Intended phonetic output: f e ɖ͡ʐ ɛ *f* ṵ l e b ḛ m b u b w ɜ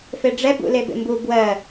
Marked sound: incorrect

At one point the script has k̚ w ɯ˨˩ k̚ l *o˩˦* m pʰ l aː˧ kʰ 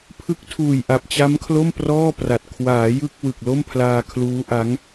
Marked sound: incorrect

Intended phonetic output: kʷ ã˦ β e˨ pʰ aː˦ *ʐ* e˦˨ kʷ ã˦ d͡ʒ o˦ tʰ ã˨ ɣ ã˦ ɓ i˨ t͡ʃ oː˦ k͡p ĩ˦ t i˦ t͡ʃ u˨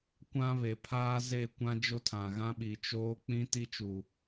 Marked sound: incorrect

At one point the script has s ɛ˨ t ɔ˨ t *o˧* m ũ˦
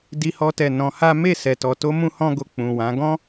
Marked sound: correct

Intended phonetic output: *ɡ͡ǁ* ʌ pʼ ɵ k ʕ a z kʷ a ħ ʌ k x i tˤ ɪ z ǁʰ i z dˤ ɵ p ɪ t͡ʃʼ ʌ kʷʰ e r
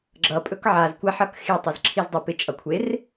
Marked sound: correct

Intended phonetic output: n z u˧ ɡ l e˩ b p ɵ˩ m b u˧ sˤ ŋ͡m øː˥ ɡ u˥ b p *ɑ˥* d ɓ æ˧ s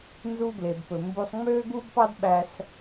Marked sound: correct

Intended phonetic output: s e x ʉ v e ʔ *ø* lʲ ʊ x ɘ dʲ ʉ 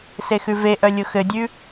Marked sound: incorrect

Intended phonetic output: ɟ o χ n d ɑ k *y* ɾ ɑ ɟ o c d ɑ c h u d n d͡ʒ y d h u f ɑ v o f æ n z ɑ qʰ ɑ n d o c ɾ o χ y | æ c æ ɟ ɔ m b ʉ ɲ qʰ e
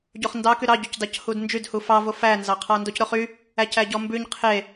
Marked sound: correct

